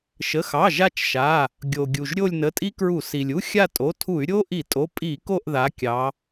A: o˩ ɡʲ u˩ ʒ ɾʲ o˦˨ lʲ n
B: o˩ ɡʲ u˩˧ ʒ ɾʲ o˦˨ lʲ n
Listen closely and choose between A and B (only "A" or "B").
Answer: A